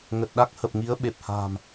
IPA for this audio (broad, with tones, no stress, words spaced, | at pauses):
ŋə˨˩t̚ɗa˦˥k̚ hə˨˩p̚ ŋi˨˦ə̯ɓe˨˩p̚ha̤ː˨˩m